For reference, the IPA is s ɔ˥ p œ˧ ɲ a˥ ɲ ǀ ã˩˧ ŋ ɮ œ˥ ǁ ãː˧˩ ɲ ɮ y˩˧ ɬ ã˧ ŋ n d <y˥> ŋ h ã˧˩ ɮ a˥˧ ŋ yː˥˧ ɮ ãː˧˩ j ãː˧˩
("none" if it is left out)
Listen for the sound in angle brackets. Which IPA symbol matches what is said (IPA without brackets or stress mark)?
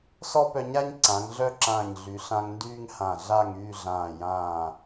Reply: yː˥